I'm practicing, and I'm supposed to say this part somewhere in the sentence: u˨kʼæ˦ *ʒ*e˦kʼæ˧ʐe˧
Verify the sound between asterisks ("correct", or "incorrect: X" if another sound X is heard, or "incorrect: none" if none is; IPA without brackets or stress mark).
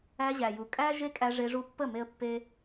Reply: correct